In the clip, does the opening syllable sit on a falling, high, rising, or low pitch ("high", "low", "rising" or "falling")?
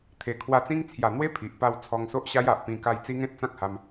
low